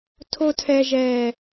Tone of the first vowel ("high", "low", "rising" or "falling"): high